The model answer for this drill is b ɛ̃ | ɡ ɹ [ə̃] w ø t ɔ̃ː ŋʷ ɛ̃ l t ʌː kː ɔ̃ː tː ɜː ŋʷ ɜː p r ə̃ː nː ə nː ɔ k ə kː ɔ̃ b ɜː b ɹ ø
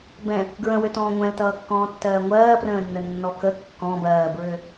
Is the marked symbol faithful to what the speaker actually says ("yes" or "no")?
yes